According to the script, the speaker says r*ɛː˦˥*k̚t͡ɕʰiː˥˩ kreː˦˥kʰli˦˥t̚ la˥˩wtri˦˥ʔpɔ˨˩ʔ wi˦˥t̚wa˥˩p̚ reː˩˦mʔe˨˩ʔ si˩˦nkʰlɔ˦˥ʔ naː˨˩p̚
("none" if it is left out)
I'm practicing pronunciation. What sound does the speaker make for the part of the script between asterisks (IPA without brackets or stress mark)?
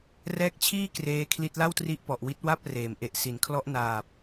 ɛː˦˥